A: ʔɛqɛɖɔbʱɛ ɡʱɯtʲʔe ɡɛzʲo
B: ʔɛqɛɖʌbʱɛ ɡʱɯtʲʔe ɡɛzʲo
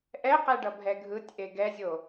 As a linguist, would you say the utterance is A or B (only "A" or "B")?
B